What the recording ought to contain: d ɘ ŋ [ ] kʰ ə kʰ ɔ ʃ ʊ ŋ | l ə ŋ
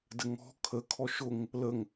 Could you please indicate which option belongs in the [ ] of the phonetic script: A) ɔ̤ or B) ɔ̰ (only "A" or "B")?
A